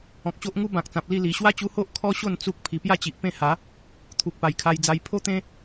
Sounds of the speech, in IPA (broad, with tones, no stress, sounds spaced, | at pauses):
ɔ̃˨ k̚ ɕ o˦ ʔ ŋ u˦ b ã˨ k̚ t͡s ã˨ p̚ l i˥˧ l i˨˩ ɕ w a˦ t͡ɕ u˧ h o˦ ʔ kʰ ɔ˦ ɕ o˥˧ n t͡s u˦ k̚ pʰ i˨˩ p j a˥˧ t͡ɕ i˨ ʔ p ẽ˥˧ h a˨˦ | t̪ʰ u˨ k̚ p a˨˩ j kʰ a˧ j d͡z a˧ j pʰ o˦ t̪ ẽ˦